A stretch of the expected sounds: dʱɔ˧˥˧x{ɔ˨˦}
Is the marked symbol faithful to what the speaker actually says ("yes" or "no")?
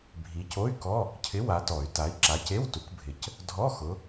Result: no